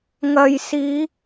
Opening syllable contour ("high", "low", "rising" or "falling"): low